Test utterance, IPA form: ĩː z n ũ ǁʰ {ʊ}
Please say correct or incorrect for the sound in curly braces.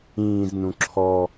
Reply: incorrect